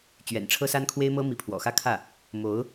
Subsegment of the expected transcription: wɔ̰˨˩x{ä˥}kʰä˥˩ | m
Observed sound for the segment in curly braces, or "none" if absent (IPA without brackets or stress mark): ä˥